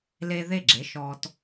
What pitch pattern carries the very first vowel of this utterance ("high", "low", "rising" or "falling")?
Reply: high